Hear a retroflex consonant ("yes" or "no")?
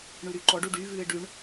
yes